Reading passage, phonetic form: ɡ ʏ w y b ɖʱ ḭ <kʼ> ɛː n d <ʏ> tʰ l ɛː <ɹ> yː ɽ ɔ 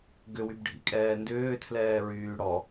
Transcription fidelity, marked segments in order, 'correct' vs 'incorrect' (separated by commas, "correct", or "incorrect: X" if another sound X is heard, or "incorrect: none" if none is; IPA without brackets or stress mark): correct, incorrect: ʏː, correct